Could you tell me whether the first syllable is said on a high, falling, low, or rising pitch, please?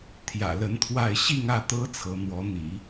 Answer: low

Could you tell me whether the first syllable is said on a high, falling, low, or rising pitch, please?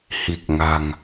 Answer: low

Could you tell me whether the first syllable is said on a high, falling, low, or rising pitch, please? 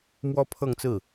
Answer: high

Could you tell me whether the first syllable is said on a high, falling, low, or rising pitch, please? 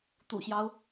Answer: low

